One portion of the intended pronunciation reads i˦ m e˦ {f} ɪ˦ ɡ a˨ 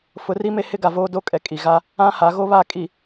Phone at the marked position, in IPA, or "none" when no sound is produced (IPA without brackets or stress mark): h